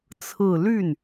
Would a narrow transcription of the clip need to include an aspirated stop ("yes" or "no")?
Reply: yes